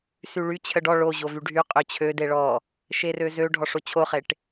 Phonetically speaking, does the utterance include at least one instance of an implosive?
no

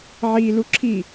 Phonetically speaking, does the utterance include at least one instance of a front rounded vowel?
no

